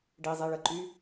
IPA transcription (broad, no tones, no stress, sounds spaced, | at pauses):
ɖ i zˤ i ɭ ə ǃ y